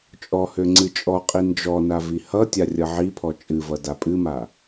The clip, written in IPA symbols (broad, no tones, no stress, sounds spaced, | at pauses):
t͡ʃʼ ɔ h ø ŋ͡ǀ ɨ t͡ʃʼ ɔ qʼ i n d͡ʒ ɔ n a v i h ʌ tʲ a rʲ ʌ ʕ i pʰ ɔ t͡ʃʼ ɨ v ʌ d a pʼ ɨ m a